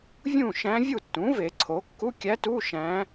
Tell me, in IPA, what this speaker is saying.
vʲ ũ˥˩ ʃ æ̃˧˥ vʲ u˥˩ tː ũ˩˥ v e˨˩˦ ǀʰ o˩˥ kː u˧˥˧ kʲ æ˧˥ t u˧˥˧ ʃ æ̃˧˥

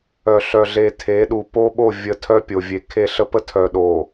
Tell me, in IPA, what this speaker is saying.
œ˨ ɬ œ˨ ɮ e˨ tʰ e˨˦ ɗ u˨ p o˦ ɓ o˦˨ vʲ ə˨ tʰ œ˦ pʲ o˨ vʲ e˨ kʰ e˦˨ ɬ ə˦ p ə˦ tʰ œ˨ ɗ o˨

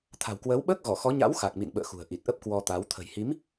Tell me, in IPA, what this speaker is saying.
t̪ʰ a̤˨˩ w k w əː˨˦ w ɓ əː˦˥ k̚ ɣ ɔ˧˩ x ɔ˨˦ ɲ a̰˧˥ w x a˨˩ k̚ m ḭ˧˨ n ɓ ə̰ː˧˨ x ṳ˨˩ ə̯ ʔ i˨˩ t̚ ʔ ə˦˥ p̚ k w ɔ˧ t̪ a˨˦ w t̪ʰ ə̤˨˩ j h i˨˦ m

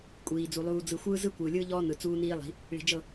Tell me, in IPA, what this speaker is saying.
kʷʼ iː˨ d͡z u˨ lˠ uː˨ d͡z ɯ˨ xʷ ɯː˦ z ɯ˦ kʷ ɯː˨ lʲ ɯː˦ ʎ ɔː˦ n ɯ˨ t͡s uː˦ n iː˦ lˠ i̤˨˦ | ɭ i̤˨ d͡ʒ ɤ˦˨

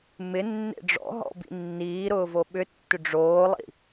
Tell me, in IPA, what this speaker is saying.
m ɪ nː ḛ ɖ͡ʐ ɔ̰ ɦ ɔ̰ b ḭ nː iː ɾ ʊː v o ɓ ʏ tː ʏ ɖ͡ʐ oː lˠ ḭ

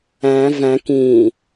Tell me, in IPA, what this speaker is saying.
æ̃ v æ̃ k ĩ

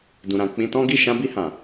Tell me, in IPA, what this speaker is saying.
d ũ˨ ɾ ã˨ k͡p ĩ˧ t ɔ̃˦ ɡ i˦˨ ʃ ã˧ b i˧ h ã˨

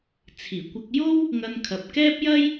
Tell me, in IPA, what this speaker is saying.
t͡sʰ iː˨˩ kʷ ɐ˧ k̚ j o˥ w | ŋ ɐ˧ n kʰ ɐ˨ p̚ k ɛː˥ p̚ j ɐ˥ j

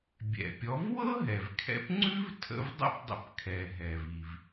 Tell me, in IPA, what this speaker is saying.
bʲ ɛ̰˩ pʲ ɔ˩˥ v w ɤ˥ ɦ ɛ˩ v kʰ ɛ̰˧ p ŋ͡ǀ ʉ˥ v tʰ ə̰˧ v dˤ ə̰˥˩ p dˤ ə̰˧ p kʰ ɛ˩ ɦ ɛ˩ v i˩ v

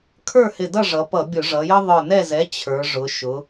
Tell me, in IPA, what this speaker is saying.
kʰ ə˞˥˨ h ɪ˧˩ d ʌ˥˨ ʐ ʌ˩˧ p ʌ˧˩˧ bʲ ʊ˧˩˧ ʐ ʌ˩˧ j ə˦ ðˤ ə˞˧˩ n ɛ˥˨ z ɛ˩˥ t͡ɕʰ ə˞˩˧ ʐ ʊ˩˧ ʃ ʊ˩˧

